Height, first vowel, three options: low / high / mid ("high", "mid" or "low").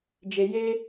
mid